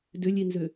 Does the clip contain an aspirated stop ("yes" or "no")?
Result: no